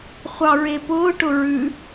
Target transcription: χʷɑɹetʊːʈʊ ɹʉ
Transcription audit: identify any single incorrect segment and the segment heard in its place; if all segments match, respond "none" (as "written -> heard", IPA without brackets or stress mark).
t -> p